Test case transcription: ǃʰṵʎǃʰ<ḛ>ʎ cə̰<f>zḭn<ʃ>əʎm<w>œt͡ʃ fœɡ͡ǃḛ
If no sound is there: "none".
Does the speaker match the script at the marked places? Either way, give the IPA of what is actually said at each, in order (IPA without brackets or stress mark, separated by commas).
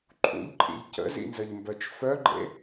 ḭ, none, z, b